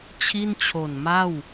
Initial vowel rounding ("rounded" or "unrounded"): unrounded